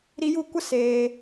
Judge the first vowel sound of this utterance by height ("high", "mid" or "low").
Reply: high